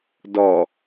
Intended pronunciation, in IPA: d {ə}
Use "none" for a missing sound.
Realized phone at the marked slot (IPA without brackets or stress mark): ɔ